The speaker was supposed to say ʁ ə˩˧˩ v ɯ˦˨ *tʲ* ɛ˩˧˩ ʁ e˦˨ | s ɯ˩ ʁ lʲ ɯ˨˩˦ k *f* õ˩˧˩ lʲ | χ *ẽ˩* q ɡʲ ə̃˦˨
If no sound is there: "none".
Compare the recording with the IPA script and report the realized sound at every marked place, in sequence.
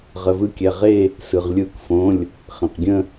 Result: kʲ, f, ẽ˩

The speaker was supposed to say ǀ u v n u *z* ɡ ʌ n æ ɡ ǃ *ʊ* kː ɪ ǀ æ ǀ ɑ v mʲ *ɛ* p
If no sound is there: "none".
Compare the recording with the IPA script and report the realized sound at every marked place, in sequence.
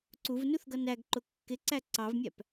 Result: θ, ʊ, æ

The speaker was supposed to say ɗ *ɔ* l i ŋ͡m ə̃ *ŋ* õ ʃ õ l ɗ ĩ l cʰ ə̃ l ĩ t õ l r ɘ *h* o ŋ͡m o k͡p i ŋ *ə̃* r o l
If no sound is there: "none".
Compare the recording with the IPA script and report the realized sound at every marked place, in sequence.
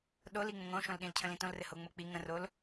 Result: o, ŋ, h, ə̃

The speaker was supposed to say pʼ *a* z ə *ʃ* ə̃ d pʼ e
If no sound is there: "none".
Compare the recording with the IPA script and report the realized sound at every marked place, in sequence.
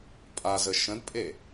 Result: a, ʃ

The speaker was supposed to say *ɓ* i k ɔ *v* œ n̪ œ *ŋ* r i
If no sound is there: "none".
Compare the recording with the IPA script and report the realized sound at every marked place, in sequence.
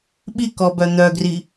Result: ɓ, b, ɡ

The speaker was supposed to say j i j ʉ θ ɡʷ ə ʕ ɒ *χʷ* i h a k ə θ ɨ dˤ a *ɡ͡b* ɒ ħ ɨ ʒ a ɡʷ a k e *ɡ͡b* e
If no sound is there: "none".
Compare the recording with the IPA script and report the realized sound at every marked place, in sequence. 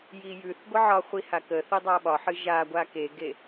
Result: χʷ, ɓ, ɡ

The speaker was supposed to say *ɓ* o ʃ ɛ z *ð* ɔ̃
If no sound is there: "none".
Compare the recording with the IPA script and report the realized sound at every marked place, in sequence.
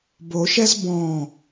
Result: b, b

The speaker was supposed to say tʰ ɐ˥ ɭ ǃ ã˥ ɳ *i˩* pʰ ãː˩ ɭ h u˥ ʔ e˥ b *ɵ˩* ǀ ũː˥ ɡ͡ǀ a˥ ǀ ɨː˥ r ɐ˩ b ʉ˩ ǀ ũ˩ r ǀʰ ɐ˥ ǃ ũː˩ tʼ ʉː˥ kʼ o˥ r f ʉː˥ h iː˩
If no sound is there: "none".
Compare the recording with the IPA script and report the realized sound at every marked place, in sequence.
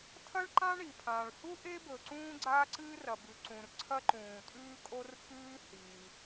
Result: i˩, ɵ˩

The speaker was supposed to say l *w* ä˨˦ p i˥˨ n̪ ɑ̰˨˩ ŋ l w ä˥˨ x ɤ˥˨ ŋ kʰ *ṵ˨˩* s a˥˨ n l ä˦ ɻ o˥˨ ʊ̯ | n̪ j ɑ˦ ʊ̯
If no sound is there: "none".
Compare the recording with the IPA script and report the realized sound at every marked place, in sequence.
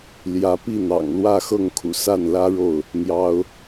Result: j, ṵ˨˩

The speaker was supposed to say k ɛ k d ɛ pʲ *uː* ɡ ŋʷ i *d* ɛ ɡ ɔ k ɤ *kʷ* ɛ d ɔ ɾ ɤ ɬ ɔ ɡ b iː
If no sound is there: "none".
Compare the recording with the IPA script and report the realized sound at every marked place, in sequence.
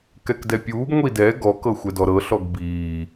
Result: uː, d, xʷ

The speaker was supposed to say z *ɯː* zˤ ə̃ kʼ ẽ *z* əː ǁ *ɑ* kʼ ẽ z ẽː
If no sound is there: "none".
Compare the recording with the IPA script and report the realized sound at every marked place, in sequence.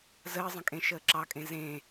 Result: əː, ʃ, ɑ

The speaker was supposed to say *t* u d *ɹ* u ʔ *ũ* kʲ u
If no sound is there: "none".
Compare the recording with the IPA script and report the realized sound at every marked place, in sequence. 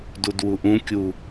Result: d, w, ũ

